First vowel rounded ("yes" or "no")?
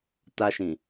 no